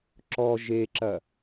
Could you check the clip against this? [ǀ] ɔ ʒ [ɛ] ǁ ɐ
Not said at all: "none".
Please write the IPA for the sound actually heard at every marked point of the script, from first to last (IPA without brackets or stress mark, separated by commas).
ǁ, e